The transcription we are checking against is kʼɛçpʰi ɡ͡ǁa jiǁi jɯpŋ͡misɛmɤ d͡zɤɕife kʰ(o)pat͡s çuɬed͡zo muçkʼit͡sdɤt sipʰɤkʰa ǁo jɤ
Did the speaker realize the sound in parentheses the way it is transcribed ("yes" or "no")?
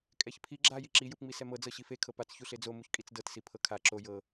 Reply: no